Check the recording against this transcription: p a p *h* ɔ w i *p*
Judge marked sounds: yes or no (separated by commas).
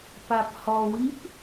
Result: yes, yes